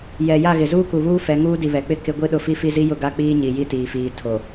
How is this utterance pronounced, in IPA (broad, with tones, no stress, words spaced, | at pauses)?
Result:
jɛ˨ ja˦˨ɣɪ˨ zuː˦ku˨βuː˦ fɛ˨˦ŋuː˦ di˨βɛ˨k͡pɪ˦ kɪ˦ ɡʷi˦ɗʊ˦fi˦ fi˦zi˦jʊ˦˨ ɡa˦k͡piː˦ɲi˨ ji˦tiː˨fiː˨ tʰo˨